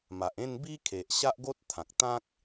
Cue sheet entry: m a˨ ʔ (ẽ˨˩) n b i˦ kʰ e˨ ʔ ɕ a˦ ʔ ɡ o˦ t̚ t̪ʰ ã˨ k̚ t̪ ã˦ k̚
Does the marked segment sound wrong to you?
yes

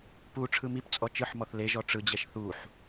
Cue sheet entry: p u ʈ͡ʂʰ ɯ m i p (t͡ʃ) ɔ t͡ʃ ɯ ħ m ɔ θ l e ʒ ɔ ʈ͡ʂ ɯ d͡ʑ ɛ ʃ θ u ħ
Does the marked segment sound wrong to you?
yes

